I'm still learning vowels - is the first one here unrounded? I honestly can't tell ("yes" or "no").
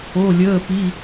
no